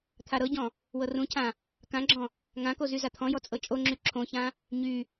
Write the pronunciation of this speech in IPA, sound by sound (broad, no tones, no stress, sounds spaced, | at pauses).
t̪ʰ a ɾ ɤ ɟ ɔ̃ | w ɤ r ũ cʰ ã | k ã ɡ͡ǁ ɔ̃ | ŋ ã k o z y z a t̪ʰ ɔ̃ j ɔ t͡sʼ ɤ t͡ʃʼ o ŋ͡ǁ y ǁʰ õ ç ã | ɲ y